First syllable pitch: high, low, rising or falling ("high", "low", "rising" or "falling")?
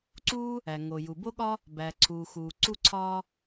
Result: high